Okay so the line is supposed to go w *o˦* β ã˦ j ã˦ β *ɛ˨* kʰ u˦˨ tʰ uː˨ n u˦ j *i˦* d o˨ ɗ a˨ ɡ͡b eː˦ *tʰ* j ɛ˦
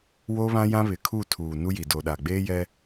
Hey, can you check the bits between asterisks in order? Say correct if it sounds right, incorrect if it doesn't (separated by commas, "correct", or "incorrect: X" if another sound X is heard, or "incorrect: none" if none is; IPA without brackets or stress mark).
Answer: correct, incorrect: ɪ˨, incorrect: i˨, incorrect: none